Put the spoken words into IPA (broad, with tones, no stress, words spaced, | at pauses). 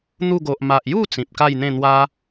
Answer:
n̪u˥˧ ɡo˨ʔ ma˨ʔju˥˧ t͡sĩ˨p̚ka˥˧jn̪ẽ˥˧ n̪wa˦